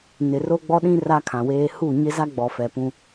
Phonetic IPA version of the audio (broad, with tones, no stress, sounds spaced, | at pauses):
n ɪ˨ r o˦ ɡ͡b ɔ˦ ɗ ĩ˦ r a˦ kʰ ã˨ w eː˦ h u˦˨ ɲ ɪ˦ z a˦ ɡ͡b ɔ˨ f ɛ˨ p ũ˦